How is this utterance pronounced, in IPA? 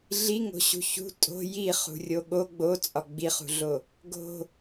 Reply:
ɮ i ŋ o̤ ɕ ṳ ç ṳ tʼ o̤ j i χ ṳ rʲ o ɠ o ɡ͡b o t͡sʼ ɒ ɡ͡b i χ ṳ ɮ o | ɡ o̤

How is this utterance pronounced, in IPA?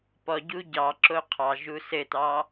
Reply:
p ɔ ɟ u ɟ ɑ ǁ o qʰ ɑ ʒ u s ɘ t ɑ

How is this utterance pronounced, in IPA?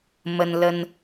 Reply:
m ə˦ n l ə˦ n

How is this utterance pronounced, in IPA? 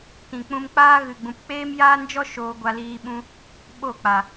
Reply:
t ĩ˨ k͡p ũ˧ m k͡p aː˦ ɣ ɨ˨ ɡ͡b ũ˨ p k͡p eː˦ m j aː˦ n d͡ʒ ɔ˦ ʃ oː˧ ɡʷ a˧ l iː˧ ɓ ũ˧ | ɓ o˦˨ k͡p a˨

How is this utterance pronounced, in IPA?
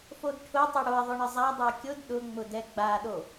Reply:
f o d ʈʰ ʊ tˤ ʊ ɽ o ɐ̯ ðˤ ʊ ɳ ə zˤ a dˤ ʊ ɐ̯ kʲ ʊ d ɗ ʊ ŋ͡m ʊ d ɛ ɡ͡b a ɗ o

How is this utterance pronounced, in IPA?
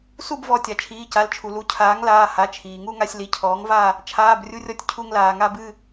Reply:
s u˥˧ b v ɔ˩˧˩ tʲ a˩ t͡ʃʰ iː˩˧˩ c a˩˥ l t͡ʃʰ u˩ l u˩˥ cʰ aː˩˥ ŋ l aː˩˧˩ h a˩˧˩ t͡ʃʰ iː˩ ŋ u˥˧ ŋ a˧ sʲ l i˩˥ cʰ ɔː˩˥ ŋ v a˥˧ | t͡ʃʰ aː˩˧˩ b rʲ u˧ rʲ ɔ˧ tʲ cʰ u˧ ŋ l aː˩ ŋ a˥˧ b ɨ˥˧

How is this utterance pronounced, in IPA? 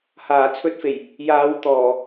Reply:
h aː˨˩ t͡sʰ ɵ˨˥ t̚ f e˨˩ j | j aː˨˧ w t̪ ɔː˨˩

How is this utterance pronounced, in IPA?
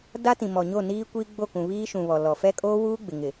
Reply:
d a˦ t ĩ˨ m ɔ˨ ɲ o˦˨ n iː˦ kʷ i˦ ɡ͡b o˦˨ k ũ˨ β iː˦ ʃ ũ˨ β ɔ˨ l ɔ˨ f ɛ˦ kʼ oː˦ w uː˦ ɡ͡b ɪ˨ ŋ ɪ˨

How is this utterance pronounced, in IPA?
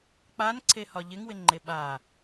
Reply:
k͡p a n ǀʰ e h ɒ ʎ ɪ ŋ w ɪ ŋ͡ǃ e ɓ a

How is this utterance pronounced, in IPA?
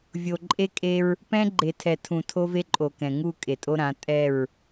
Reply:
vʲ o˨ ǃʼ e˦ kʼ e˦ ɹ | p ɛ̃˦ ɡ͡ǃ e˨ tʰ ɛ˨ tʰ ũ˨ tʰ o˦ v e˦ ǃʼ o˨ k ɛ̃˨ ŋ u˦˨ kʼ e˨ tʼ o˦ ɾ ã˨˦ tʼ ɛ˦˨ ɹ

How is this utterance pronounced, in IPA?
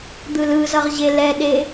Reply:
d̪ ɯ l ɯ z ʌ ʁ ʑ e l ɛ ɗ e

